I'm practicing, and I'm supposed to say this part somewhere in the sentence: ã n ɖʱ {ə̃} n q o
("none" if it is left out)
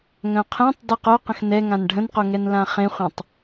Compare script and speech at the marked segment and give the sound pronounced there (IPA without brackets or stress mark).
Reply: ə̃